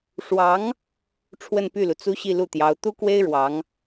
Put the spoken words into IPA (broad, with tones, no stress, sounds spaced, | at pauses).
ʂ w ɑ˧˥ ŋ | ʈ͡ʂʰ w ə˥˧ n p y˥˩ l u˩ t͡s u˥ ɕ i˥˧ l u˥˩ t̪ j ɑ˧˥ ʊ̯ t̪ u˥ k w e˥ ɪ̯ ɻ w ɑ˧˥ ŋ